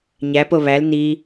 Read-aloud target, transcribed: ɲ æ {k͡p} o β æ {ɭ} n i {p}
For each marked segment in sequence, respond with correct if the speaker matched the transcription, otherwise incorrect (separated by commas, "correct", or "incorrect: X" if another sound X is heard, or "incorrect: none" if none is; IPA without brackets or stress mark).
incorrect: p, incorrect: l, incorrect: none